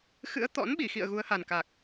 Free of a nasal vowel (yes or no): yes